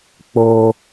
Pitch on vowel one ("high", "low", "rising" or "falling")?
high